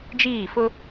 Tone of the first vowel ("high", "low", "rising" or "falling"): falling